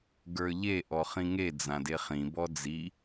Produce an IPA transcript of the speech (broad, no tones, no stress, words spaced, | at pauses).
ɡə˞ʎe ʔɔχĩŋe d͡zãdeχĩ bɔd͡zi